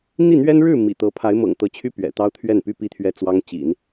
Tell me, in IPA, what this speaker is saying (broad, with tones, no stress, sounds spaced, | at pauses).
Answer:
n̪ i˥˩ n̪ ɥ ɛ˥ n ɻ ɻ̩˥˩ m ḭ˨˩ t̪ ɤ˧˥ pʰ a˧˥ ɪ̯ m ɤ̰˨˩ ŋ t̪ ɤ˧˥ t͡ɕʰ y˥ p ɥ ɛ̰˨˩ t̪ ɑ˥ ʊ̯ t̪ʰ ɥ ɛ˥˩ n p y˥ p i˥˧ t̪ʰ ɥ ɛ˥˩ t͡s w ɑ˥ ŋ t͡ɕ ḭ˨˩˦ n